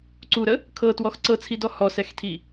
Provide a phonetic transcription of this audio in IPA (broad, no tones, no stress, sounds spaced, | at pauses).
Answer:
ǀ u ɾ ə | kʰ ɤ t w ɔ x ǀ ɤ t͡sʰ i d ɔ h ɔ s ɛ x tʰ i